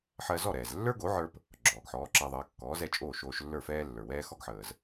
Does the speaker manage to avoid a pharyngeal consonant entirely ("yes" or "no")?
no